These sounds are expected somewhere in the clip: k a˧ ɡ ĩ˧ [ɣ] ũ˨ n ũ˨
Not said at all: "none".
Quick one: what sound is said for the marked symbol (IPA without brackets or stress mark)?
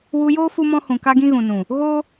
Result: ɣ